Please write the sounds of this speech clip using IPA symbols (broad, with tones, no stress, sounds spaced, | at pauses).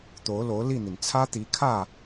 t̪ o˧˥ ʊ̯ l o˧˥ ʊ̯ l i˥˩ n̪ i˩ n t͡sʰ ä˥ t̪ i˧˥ kʰ ä˥˩